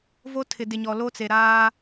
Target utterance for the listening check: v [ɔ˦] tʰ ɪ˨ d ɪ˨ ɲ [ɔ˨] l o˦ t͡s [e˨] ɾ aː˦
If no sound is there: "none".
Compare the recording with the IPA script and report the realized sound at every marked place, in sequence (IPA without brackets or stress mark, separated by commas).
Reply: o˦, ɔ˨, e˨